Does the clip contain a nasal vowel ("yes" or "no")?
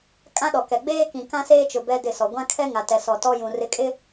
yes